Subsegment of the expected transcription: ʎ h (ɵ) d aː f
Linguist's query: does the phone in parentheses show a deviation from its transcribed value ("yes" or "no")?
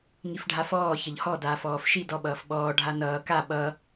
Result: yes